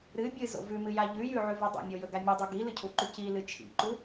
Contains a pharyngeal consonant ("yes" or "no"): yes